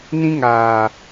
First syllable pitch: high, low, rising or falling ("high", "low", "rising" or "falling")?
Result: high